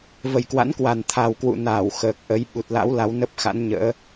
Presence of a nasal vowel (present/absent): absent